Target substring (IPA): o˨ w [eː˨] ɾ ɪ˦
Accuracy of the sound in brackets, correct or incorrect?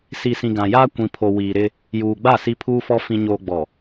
incorrect